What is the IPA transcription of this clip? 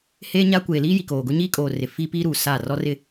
h eː˦ ɲ a˦ kʷ eː˨ l iː˦ j i˨ k oː˨ ɡ ʊ˦ ɲ iː˦ kʼ oː˨ r ɪ˨ f iː˦ p iː˦ ɾ uː˨ s a˦˨ r ɔ˦ r ɪ˦

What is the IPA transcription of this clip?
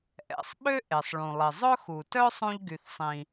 ʔ ɛ̰˩ sˤ ɓ ø˥ ʔ e˩ sˤ ɭ ũ˩ lˠ i˩ zˤ ɵ˥ x u˩ t œ˥ sˤ ũ˧ ʎ ɡ y˩ θ sˤ ĩ˩

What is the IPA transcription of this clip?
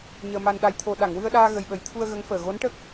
ɲ əː˧ m a˧ n ɗ a˧ j t̪ʰ o˧ ɗ a˨˩˨ ŋ w ɨ˧ ə̯ ɗ aː˧ ɣ ə˨˩ j ɓ ə˨˩˦ j t̪ʰ u˧ ə̯ ɣ ə˧˥ ŋ f əː˨˩ ɣ o˧˥ n ʈ ə˦˥ k̚

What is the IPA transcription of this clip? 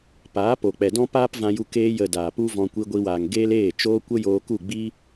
p aː˨˦ p o˨ k͡p ɛ˨ d ɔ̃˦ p aː˦ p v ã˧ j u˧ k eː˧ j ə˨ d aː˨ p u˦ v ɔ̃˧ kʷ i˧ ɡʷ i˧ w aː˨ ŋ ɡ eː˦ l eː˦˨ t͡ʃ oː˦ kʷ ə˦ j oː˧ k u˦˨ ɡ͡b i˦

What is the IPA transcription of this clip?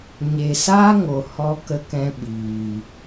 ɲ e˨ s aː˦ ŋ o˨ h ɔ˧ k ə˦ k ɛ̃˦ ɓ iː˨

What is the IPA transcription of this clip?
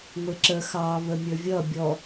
ŋʷ ɪ ǁ ə x ɑ β ə mʲ ə˞ vʲ ʌ bʲ ɔ

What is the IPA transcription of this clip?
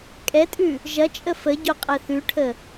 kʼ ɛ tʼ ʉ | ʒ ɐ t͡ʃʼ ə f ə ɟ o qʼ ɛ θ ʉ ʈʰ ə

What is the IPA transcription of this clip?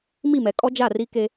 m i˦˨ m ɛ˨ kʼ ɔ˦ d͡ʒ a˦˨ r i˦ k e˦

